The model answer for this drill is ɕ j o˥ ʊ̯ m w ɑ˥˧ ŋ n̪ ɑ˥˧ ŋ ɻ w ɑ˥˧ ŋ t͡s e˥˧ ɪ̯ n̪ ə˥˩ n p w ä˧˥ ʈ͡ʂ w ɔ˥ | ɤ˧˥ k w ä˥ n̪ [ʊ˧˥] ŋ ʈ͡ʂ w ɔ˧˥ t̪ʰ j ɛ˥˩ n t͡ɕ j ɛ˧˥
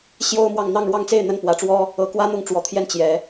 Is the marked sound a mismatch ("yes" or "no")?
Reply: yes